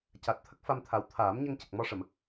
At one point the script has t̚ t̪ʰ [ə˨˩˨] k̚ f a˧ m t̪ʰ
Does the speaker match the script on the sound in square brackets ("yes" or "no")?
no